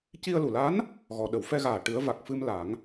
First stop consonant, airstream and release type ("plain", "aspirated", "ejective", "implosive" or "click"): plain